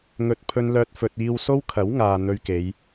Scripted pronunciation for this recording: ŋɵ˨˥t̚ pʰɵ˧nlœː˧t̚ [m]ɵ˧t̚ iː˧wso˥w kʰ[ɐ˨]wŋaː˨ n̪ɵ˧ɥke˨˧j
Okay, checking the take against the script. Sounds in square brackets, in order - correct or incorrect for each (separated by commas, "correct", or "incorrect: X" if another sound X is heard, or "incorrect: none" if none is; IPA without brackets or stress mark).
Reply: incorrect: f, incorrect: ɐ˨˥